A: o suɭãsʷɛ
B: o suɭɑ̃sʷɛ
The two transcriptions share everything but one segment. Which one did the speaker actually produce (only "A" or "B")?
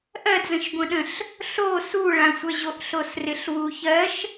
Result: A